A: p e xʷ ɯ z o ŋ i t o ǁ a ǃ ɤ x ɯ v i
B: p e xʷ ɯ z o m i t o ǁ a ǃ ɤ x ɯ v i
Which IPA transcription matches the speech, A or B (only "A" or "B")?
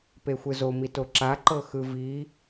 B